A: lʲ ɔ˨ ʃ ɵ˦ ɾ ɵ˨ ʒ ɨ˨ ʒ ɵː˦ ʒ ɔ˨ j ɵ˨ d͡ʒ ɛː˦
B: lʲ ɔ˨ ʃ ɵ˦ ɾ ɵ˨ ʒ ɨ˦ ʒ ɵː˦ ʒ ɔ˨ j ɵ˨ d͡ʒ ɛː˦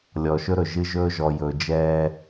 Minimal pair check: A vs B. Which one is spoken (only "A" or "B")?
B